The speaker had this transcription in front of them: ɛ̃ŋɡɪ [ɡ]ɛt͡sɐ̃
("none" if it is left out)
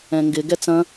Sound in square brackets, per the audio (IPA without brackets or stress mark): ɡ